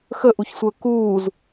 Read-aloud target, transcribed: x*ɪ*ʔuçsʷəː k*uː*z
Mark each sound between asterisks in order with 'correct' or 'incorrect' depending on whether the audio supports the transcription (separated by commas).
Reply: incorrect, correct